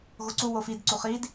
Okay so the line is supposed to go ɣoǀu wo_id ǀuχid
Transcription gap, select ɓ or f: f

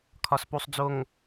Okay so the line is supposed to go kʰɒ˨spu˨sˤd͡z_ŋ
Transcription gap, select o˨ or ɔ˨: o˨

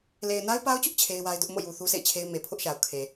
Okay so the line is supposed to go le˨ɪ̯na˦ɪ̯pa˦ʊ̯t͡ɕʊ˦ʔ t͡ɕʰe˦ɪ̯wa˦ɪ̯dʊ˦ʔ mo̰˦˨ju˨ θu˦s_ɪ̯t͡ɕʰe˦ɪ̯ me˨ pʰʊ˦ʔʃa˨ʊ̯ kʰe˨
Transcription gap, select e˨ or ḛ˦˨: ḛ˦˨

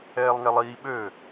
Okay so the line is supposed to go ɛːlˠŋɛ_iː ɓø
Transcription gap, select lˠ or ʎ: lˠ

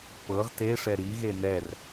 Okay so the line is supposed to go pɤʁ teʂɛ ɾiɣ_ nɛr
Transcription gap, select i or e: e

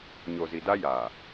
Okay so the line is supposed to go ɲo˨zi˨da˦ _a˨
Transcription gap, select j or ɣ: j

